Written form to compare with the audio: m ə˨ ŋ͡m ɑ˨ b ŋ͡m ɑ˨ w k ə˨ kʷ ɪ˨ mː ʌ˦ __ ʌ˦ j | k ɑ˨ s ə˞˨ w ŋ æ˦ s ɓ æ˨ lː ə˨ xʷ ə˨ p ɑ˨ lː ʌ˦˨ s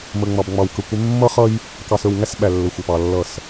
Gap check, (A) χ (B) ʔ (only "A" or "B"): A